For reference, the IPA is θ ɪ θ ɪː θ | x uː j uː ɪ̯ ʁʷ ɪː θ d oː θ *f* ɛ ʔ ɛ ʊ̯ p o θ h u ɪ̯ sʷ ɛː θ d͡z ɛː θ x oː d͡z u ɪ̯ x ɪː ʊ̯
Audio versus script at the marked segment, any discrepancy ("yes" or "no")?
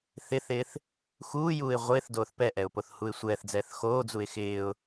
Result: yes